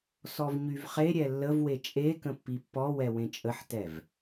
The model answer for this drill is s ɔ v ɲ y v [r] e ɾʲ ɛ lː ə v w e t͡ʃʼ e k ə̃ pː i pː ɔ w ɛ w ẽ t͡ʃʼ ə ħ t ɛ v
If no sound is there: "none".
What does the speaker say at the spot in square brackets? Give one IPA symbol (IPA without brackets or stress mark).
χ